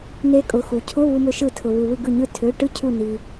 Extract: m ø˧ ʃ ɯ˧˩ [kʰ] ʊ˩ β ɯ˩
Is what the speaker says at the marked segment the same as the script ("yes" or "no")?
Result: no